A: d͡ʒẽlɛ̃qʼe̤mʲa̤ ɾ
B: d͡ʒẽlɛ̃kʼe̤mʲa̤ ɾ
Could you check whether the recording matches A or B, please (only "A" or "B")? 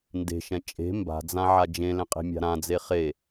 A